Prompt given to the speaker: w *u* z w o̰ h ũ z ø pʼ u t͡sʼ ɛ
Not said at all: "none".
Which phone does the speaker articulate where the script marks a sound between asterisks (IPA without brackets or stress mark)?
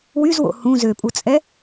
y